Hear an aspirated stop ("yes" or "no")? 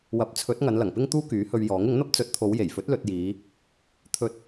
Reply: yes